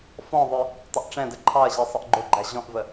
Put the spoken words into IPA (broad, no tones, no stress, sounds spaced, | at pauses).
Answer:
f ɔ̃ ðˤ ə˞ | tˤ ə ʔ ʈ͡ʂ ɛ̃ d ə ǃʰ ɑ ɐ̯ ʑ ɛ sˤ ə ʔ ɡ͡ǃ ʊ ɡ͡ǃ æ ʑ ɔ̃ ʔ v ə